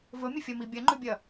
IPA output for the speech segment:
vɵmʲɵfʲɐmi bʲɐŋ͡ǃʉbʲɐ

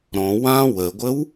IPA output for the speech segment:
ɾɔ̃ wã wəɡʷəw

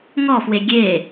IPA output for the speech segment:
ŋɔfwe ɡʲe

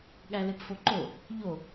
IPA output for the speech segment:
ɠælepfoǃo | ʎo

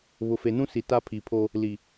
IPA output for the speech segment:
βʊ˨fe˨nũ˦si˨ ta˦pʰi˨pʰo˦ | li˨

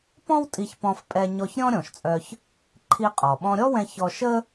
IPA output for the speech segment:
pɔ̃˥w tʼi˧çpɔ̃˧fpʼɛ˧ɲɔ˧ç ɾʲɔ̃˥ ɾʲɔ̃˩ʃt͡sʼœ˧ç | ǃʰi˧qʼɔ˩ ɓɔ̃˧ɾʲɔ˥wɛ̃˧ çɔ˧ʃə˥

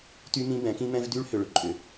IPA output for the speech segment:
ty˦mĩ˦ bɛ̃˨˦kĩ˦mɛ̃˦v dy˦ɭhʏ˨ɭʏ˨ ǃʼʏ˨

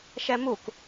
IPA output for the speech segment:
ʃɛmuk

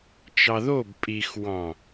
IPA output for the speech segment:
t͡ʃɑðob pʼixwɑ̃

